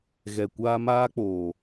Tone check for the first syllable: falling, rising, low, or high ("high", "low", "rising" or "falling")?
low